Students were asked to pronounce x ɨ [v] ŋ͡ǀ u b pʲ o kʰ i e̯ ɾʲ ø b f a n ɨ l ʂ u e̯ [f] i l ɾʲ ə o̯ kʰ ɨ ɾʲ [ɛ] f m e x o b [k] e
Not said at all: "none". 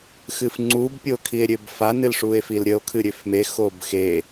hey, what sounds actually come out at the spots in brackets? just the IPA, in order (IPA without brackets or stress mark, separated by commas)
f, f, ø, x